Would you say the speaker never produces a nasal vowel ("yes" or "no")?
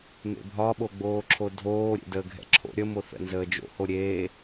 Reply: yes